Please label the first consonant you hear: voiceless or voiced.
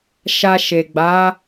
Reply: voiceless